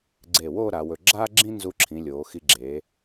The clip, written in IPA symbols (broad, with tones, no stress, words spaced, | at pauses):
ɡ͡ǀe˧˩wo˥˧ ɾa˩˧wɵ˧˩ ɡ͡ǁaː˥ɡ͡ǁĩ˥ nzu˧ǁʰĩ˩˧ lʲoː˩˧xi˧ ɡ͡ǁe˩˧